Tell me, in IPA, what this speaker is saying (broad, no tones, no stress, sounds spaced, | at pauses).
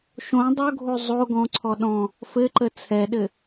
ʃ õ dˤ o ɡʱ o zˤ o ɡ ɔ̃ ǀʰ ɔ ɗ ɔ̃ | f ɘ ǃ ə t͡sʰ ɛ ɗ ɘ